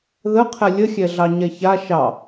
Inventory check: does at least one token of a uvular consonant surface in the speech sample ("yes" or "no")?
yes